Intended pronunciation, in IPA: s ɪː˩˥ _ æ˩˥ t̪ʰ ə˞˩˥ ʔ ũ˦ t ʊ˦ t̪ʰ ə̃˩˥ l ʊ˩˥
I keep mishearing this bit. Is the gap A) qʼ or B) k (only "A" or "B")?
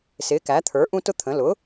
B